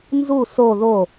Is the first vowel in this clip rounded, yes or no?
yes